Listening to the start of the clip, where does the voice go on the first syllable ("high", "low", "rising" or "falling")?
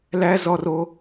high